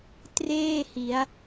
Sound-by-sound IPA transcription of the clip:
t r eː˥˩ h i˩˦ a̯

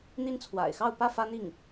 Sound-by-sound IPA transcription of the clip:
n̪ i˧˥ n t͡sʰ w a̰˨˩ ɪ̯ x ɑ˥˧ ʊ̯ p ä˥˩ f ä˥ n̪ i˥˩ ŋ

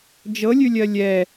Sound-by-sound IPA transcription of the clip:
d͡ʒ ɤ lʲ ʉ lʲ ɜ lʲ ɛ

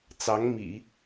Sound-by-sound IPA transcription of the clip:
t͡s ɑ˧˥ ŋ m ḭ˨˩˦

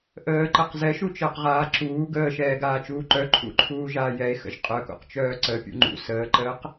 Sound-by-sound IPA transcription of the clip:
ʔ əː ǃ ə q z ɛ ʃ u t͡ʃ əː q ʁ aː ǁ uː ɡ əː ʃ ɛː ɡ aː t͡ʃ uː ǃ œ ǃʰ ṵ ǃʰ uː ʒ aː j ɛ e̯ x ə̰ ʒ qʼ œ k ṵ q t͡ʃ œː ǀ ə pʲ ṵ ŋ͡ǃ ṵ s əː ǃ əː q

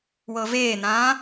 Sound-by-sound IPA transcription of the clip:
w ɤ v eː n ãː

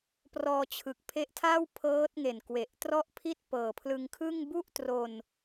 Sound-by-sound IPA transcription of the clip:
p r ɔː˧ t͡ɕʰ ɯ˨˩ k̚ pʰ e˦˥ ʔ tʰ aː˥˩ w pʰ ɤː˦˥ t̚ ŋ e˨˩ n k w e˨˩ ʔ t r ɔ˥˩ ʔ pʰ i˥˩ t̚ p ɤː˨˩ pʰ l ɯ˧ ŋ kʰ ɯ˥˩ ŋ b u˥˩ ʔ t r o˧ n

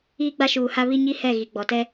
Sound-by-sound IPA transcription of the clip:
iː˦ ɡ͡b a˦ ʃ uː˨ h a˦ β i˦ ɲ i˦ h ɛ˦˨ ɣ i˨ ɡ͡b ɔ˨ t ɛ˦

